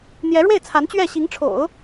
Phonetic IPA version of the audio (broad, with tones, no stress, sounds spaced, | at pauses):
n̪ j ɛ˧˥ ɻ w e˥˩ ɪ̯ t͡sʰ a˧˥ n t͡ɕ ɥ ɛ˥˩ ɕ i˧˥ ŋ ʈ͡ʂʰ o̰˨˩˦ ʊ̯